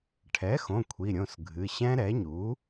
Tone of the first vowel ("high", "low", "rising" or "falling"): rising